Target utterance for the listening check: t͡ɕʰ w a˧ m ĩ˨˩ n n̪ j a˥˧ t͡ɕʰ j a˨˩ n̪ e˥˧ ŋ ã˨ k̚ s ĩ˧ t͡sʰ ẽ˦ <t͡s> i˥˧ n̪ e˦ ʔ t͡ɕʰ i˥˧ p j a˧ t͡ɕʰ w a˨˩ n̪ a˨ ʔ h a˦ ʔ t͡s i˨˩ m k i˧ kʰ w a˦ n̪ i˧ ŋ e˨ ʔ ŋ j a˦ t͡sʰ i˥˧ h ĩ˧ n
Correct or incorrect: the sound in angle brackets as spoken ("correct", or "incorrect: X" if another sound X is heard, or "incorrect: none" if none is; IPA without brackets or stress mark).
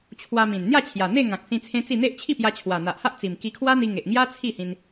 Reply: correct